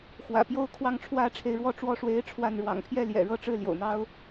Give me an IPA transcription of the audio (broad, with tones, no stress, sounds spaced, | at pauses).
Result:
x w ä̰˨˩ p j o˦ ʊ̯ kʰ w ɑ˥˨ ŋ ʈ͡ʂʰ w ä˦ ʈ͡ʂʰ e˨˦ ɪ̯ ɻ w ɔ˦ ʈ͡ʂ w ɔ˥˨ ʂ w e˦ ɪ̯ ʈ͡ʂʰ w a˥˨ n ɻ w ɑ̰˨˩ ŋ pʰ j ɛ˥˨ l j ɛ̰˨˩ ɻ ɤ˥˨ ʈ͡ʂ ɻ̩˥˨ l j o̰˨˩ ʊ̯ n̪ ɑ˦ ʊ̯